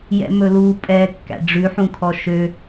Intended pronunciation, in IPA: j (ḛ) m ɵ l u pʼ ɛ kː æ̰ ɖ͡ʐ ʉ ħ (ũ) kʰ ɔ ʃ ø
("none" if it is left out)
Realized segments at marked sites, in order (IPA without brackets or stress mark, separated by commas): ɛ̰, ũ